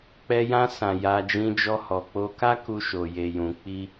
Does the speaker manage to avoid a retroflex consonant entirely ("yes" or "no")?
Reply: yes